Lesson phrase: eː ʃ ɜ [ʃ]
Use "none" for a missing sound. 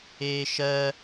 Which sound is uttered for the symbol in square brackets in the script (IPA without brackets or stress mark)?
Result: none